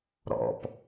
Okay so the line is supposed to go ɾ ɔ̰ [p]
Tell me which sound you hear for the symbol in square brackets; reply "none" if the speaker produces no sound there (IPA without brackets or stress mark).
p